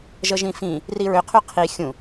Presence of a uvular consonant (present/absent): present